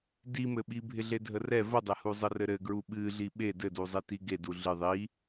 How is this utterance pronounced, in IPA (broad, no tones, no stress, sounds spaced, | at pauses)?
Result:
d i m ɘ ɓ i bʱ ɪ ɮ e dʱ ə r ɛ v ə dˤ e h u zˤ ə r ɘ ɾ ɘ ɡ ɹ u ɓ ɨ ɮ i ɓ e d ɘ d u zˤ i t i ɡ e d u ɮ ɨ ðˤ i